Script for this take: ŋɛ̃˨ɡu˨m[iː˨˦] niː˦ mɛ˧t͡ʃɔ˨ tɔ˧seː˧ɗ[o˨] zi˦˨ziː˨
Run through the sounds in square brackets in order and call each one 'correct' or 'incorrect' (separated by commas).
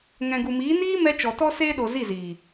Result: correct, correct